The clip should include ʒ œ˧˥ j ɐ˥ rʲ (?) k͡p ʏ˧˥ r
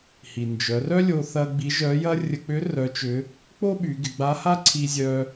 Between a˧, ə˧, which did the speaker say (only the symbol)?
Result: ə˧